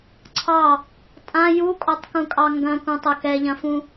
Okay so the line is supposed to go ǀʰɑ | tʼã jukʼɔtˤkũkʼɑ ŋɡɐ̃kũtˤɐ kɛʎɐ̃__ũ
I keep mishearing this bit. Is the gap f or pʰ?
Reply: f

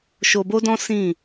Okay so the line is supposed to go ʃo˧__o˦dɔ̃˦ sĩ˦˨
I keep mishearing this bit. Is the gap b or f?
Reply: b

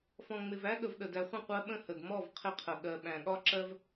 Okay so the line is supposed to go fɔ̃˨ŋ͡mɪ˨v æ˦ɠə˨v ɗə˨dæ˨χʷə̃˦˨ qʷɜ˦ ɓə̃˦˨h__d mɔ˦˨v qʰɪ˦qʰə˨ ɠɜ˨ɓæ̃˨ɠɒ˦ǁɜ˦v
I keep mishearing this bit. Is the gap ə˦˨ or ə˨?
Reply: ə˨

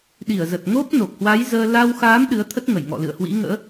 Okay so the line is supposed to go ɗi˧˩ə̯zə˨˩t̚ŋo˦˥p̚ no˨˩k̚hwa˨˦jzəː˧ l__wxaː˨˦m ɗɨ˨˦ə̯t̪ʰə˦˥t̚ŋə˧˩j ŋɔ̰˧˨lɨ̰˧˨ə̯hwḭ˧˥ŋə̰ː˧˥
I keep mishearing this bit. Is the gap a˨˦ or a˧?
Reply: a˧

